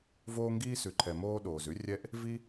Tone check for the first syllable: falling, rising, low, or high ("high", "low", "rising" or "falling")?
high